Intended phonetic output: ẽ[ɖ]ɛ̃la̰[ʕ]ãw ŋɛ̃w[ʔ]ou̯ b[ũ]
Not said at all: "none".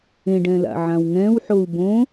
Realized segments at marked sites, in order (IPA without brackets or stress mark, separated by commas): ɖ, ʕ, ħ, õ